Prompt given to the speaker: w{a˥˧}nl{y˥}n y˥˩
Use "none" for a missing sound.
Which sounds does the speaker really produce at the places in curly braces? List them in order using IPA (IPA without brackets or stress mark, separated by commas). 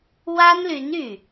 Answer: a˥, y˧˥